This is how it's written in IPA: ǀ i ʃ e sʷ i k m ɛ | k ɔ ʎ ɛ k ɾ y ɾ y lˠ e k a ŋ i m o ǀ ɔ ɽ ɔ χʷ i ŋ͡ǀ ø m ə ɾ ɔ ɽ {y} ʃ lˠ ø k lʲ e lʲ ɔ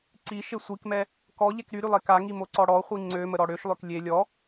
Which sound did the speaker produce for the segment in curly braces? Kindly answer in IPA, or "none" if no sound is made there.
ø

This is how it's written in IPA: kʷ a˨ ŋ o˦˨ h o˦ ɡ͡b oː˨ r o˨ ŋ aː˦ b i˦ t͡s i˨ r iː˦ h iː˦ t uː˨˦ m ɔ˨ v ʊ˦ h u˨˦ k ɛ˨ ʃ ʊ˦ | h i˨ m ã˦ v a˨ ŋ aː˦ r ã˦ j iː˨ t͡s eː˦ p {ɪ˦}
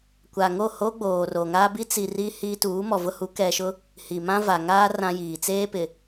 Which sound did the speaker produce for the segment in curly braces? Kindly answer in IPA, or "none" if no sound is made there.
ɪ˨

